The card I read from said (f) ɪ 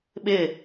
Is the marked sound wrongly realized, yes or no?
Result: yes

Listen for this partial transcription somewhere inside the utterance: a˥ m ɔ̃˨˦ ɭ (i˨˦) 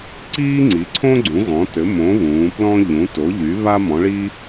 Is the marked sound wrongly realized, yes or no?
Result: yes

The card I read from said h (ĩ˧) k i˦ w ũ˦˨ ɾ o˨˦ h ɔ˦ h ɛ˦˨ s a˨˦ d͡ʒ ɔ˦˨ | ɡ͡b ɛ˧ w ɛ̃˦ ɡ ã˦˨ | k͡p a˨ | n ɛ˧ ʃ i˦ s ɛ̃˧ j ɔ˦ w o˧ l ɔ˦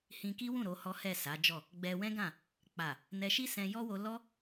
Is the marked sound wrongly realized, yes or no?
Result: no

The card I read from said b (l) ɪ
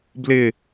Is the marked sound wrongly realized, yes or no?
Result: no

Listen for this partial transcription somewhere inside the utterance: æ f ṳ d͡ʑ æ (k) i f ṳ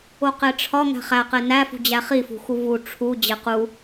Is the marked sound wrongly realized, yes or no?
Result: yes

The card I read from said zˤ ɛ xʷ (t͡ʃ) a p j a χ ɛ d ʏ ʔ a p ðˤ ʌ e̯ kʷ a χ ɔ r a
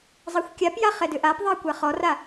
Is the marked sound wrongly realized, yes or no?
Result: yes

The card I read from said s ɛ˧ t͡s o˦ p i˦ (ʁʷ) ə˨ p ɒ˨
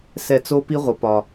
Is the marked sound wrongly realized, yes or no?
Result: no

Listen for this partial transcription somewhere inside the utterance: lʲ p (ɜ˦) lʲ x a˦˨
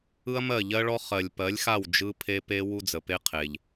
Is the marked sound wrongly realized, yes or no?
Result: yes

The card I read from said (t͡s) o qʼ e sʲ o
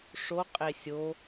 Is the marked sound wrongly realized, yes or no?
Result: yes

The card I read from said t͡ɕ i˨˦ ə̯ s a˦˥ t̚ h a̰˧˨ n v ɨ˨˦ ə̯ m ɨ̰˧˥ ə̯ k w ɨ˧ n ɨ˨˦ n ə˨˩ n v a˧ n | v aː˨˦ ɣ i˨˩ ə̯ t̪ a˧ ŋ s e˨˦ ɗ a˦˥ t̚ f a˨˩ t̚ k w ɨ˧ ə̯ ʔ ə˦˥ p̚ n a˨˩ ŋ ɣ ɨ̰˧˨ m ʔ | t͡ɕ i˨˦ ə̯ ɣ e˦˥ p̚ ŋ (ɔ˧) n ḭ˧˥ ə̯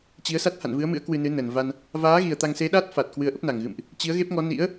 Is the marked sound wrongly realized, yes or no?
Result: yes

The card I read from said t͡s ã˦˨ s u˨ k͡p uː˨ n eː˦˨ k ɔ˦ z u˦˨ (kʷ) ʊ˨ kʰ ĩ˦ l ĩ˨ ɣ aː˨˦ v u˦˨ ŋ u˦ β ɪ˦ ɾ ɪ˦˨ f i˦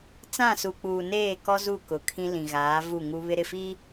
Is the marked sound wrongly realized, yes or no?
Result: yes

